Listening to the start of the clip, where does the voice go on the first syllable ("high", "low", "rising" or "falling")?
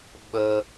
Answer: high